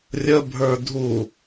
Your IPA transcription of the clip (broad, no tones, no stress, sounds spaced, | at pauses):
rʲ ə bʱ ə˞ dʱ u